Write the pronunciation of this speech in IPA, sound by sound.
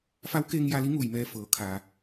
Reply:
f a˧˥ w k eː˧ ŋ j a˧ l i˧˥ ŋ uː˧˩ j m ɛː˧ f ɤː˩˧ kʰ aː˩

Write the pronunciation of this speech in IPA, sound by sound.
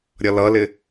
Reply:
ɾʲ ʌ l ʌ l ɪ

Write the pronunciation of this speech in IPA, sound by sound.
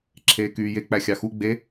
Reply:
ǁʰ eː k yː j e k͡p æ xʲ ɑ x u ɡ͡b e

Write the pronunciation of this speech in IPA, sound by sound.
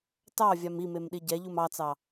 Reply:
t ɑ vʲ a m i m e m ɗ i ɟ ɛ ʎ u m ɑ t͡s ɑ

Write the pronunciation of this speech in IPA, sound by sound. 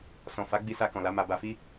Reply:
s ɔ̃˨ f a˨˦ ɡ͡b i˧ s a˧ k ɔ̃˨ l a˨˦ m a˧ b a˧ f i˦

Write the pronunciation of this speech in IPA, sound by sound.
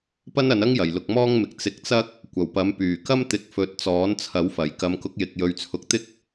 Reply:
p ɐ˥ n ɐ˨˧ n ɐ˥ ŋ j ɐ˨˩ j l ʊ˨ k̚ m ɔː˥ ŋ m ɪ˨ k̚ t͡s ɪ˨˥ k̚ t͡s ɐ˥ k̚ | kʷ ɐ˨˩ w p ɐ˨˥ m p yː˨˩ k ɐ˥ m t̪ ɪ˨˥ k̚ f ɵ˨˥ t̚ t͡s ɔː˨˥ n t͡sʰ ɐ˨˥ w f ɐ˨˩ j k ɐ˨˧ m k ʊ˨˥ k̚ j ɪ˨ k̚ j ɵ˨˧ ɥ t͡sʰ ʊ˨˥ k̚ t̪ ɪ˥ k̚

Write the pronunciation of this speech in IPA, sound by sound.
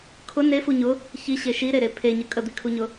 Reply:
kʰ ʊ n e f u ɲ ʊ | ç i ɕ e ʃ i ɾ e ɾ e pʰ e ɲ ə kʼ ə d̪ i kʰ u ɲ ʊ

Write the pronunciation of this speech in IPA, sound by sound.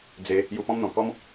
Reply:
d͡z e˨˦ | j u˧ p ɔ̃˦ m n̪ ɔ̃˨˩ k ɔ˦ m

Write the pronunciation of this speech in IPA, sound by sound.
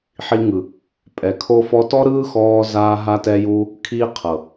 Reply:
ħ i˧ ŋ ɯ˨ | pʼ ɛ˨ kʰ o˧ f ɔ˧ t ɔ˦ ɾ ɯː˦ x ɔː˧ z aː˧ ɦ a˧ t ɛ˧ j uː˧ | kʰ iː˦ qʰ ɤ˨

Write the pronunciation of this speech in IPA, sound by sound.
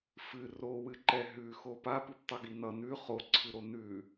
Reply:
f ɨ r o w ɨ ǃ ɛ ɦ ʉ x o p a p ʉ p tˤ ɤ ɡ i n ʌ n ʉ χ o ǀʰ ɨ ɾ o n ʉ

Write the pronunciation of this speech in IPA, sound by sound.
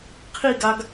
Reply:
qʰ i ɡ a ɡ

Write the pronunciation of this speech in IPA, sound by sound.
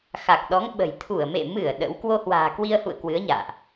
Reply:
x a˨˩ k̚ ɗ ɔ˨˦ ŋ ɓ ə̤˨˩ j t̪ʰ u˧˩ ə̯ m ḛ˧˨ m ɨ˧˩ ə̯ ɗ ə̰˧˥ w k w o˧ h w a̤ː˨˩ k w i˧ ə̯ h ṵ˧˨ ə̯ k w ɨ˨˦ ə̯ ɲ a̰ː˧˨ ʔ

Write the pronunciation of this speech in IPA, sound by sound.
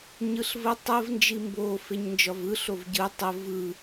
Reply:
ɲ ɯ ɬ v ə tˤ ə v n d͡ʒ i m b o f e ɲ n d͡ʒ ɒ v ɯ ɬ o v ɟ ɯ tˤ ə v ɯ

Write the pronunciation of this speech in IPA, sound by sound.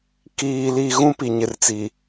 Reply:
k iː˨ l i˨ ɣ ũ˦ p i˨ ɲ ɪ˨ r t͡s i˨

